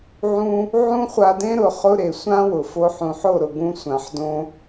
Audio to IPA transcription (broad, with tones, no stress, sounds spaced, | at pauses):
ʕ ũ˦ | ʕ ũ˦ χʷ a˧ d ẽ˦ ɾ ʊ˨ χ ʊ˧ ɾ e˨ sʷ ã˦ w ʊ˨ f o˧ ħ ũ˨ ħ o˦˨ ɾ ʊ˨ ɡ ũ˧ sʷ ã˨ ħ d õ˧